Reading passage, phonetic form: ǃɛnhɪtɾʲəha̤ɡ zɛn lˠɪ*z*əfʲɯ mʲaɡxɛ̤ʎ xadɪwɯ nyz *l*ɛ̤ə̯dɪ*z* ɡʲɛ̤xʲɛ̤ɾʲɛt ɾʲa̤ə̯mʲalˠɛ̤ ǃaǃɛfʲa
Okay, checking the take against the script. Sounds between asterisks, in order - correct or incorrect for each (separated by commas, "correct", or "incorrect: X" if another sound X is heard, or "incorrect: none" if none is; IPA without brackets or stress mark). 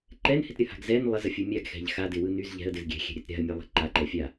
correct, incorrect: ʎ, correct